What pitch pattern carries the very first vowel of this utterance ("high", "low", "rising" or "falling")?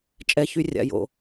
high